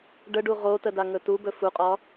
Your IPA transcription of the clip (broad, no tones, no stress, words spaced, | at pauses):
ɖəɖu ʁotədaŋɵ tubɵ fuqʼɒ